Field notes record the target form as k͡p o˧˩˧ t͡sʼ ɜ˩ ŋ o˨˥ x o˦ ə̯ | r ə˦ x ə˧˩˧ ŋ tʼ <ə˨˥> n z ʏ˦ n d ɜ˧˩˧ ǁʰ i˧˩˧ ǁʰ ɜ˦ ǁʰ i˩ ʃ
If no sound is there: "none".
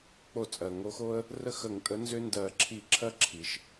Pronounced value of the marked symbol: ə˨˥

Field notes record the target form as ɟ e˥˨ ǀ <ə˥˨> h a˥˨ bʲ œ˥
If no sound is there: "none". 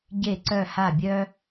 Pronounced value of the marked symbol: œ˥˨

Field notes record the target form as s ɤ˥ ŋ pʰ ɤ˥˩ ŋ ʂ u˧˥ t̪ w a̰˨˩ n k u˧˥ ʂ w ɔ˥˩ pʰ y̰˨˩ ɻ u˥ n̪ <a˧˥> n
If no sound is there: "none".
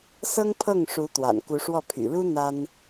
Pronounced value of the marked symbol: a˥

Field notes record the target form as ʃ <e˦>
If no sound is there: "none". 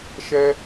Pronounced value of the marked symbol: ɛ˦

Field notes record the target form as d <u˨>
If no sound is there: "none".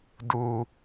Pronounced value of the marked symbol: u˨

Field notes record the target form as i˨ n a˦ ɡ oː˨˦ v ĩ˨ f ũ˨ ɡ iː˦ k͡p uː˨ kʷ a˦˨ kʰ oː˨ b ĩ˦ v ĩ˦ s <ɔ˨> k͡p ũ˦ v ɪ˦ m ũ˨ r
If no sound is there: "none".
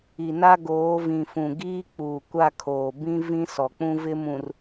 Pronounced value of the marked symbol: ɔ˨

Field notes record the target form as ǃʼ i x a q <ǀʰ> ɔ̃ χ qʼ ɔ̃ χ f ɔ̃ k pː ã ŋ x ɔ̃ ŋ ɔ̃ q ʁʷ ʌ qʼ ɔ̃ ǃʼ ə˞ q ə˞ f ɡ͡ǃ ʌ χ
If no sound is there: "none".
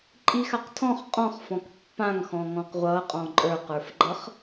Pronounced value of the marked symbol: tʰ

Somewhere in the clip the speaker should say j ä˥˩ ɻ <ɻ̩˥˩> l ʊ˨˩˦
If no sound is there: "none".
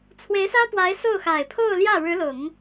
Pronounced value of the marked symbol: ɻ̩˧˥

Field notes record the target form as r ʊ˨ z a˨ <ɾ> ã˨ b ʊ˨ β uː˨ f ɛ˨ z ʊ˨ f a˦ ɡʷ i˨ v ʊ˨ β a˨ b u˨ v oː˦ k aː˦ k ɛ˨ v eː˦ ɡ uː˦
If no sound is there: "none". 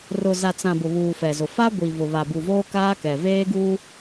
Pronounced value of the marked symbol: t͡s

